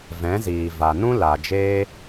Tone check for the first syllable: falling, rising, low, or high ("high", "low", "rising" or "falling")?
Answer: rising